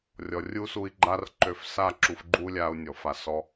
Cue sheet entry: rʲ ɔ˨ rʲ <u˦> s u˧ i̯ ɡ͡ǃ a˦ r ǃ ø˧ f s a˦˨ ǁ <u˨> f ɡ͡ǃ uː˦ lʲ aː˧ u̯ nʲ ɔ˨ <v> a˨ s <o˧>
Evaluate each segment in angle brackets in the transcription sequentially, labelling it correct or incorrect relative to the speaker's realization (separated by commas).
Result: correct, incorrect, incorrect, incorrect